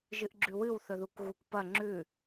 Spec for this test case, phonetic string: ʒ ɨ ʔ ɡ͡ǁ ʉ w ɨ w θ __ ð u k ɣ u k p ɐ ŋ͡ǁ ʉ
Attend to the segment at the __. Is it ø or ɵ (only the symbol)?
ɵ